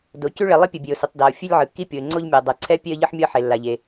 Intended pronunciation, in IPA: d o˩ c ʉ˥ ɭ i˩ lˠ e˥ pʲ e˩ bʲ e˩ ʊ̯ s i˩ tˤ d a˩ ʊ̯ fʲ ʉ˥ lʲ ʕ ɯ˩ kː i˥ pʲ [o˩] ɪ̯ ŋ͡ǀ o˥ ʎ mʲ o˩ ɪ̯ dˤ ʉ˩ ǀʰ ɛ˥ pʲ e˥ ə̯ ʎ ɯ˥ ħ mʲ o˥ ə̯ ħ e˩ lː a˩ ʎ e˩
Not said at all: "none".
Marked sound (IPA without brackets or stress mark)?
o˩